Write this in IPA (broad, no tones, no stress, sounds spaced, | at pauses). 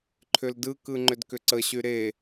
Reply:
ǃʰ ʏ l d ɯ k ɯ ŋ͡ǃ ʏ d k ʏ ǀ ə ɕ y ɾ e